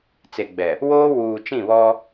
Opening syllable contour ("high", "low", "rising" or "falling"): low